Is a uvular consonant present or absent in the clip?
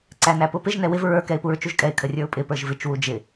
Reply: absent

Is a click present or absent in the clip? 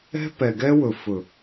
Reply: absent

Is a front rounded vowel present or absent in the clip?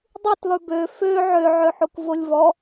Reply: present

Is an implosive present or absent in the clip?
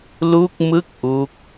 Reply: absent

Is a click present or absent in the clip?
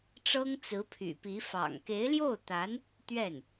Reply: absent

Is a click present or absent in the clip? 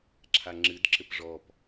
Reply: present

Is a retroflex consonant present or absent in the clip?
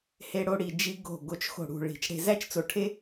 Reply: present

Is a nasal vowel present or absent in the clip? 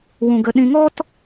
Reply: present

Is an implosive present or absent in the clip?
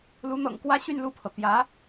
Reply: absent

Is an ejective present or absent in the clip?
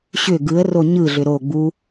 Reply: absent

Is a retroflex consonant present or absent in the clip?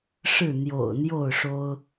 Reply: present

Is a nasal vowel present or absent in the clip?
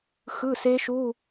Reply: absent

